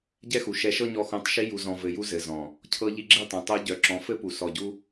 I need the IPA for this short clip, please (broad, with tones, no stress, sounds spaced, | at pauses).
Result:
ɟ ɛ˦ x u˨ ʃ ɛ˧ ʃ ɤ˦ ɲ ɔ˧ x õ˨˦ tˤ ʃ i˧ j u˨ z ɔ̃˨ v ɘ˨ j u˧ z ɘ˨ z ɔ̃˨ | cʰ ɤ˧ ʎ i˧ ɡ͡ǁ ɘ˦˨ tˤ ɛ̃˨ tˤ o˧ ɟ œ˨ ǁ ɔ̃˧ f ɘ˦ p u˨ s ɔ˨ ɟ u˧